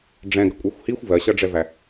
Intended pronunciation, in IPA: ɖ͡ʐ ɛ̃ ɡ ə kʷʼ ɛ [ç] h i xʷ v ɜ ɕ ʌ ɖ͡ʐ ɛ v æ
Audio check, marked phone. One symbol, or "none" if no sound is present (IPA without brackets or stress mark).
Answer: xʷ